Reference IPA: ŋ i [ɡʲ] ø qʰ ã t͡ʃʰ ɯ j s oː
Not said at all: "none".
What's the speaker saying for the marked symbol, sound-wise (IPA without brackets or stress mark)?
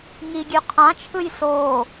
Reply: ɡʲ